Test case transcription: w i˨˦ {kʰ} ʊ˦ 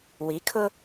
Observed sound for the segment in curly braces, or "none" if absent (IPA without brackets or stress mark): kʰ